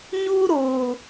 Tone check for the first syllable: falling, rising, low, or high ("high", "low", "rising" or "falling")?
high